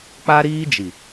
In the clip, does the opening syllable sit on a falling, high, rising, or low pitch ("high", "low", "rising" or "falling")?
high